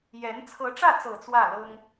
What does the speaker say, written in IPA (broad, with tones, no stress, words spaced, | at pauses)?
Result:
jɛ˧˥n t͡sʰɤ˧˥ʈ͡ʂä˥˩t͡sɤ˨˩ t͡swä˥˩lɤ˥ŋ